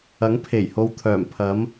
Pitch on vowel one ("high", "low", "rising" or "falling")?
rising